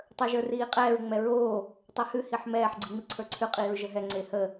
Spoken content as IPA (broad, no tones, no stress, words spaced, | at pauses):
tˤə˞ʒə˞riːqʼɛːɹ ŋ͡mɛɹoː | tˤehʉ hiħmɛːħ ɡ͡ǀiŋ͡miǀʰə˞ǀʰʉ qʼiːɹʒəɦɛ ŋ͡ǀehə